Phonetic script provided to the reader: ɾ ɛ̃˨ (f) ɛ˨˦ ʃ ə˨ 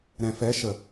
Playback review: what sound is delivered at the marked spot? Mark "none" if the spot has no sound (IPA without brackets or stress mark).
f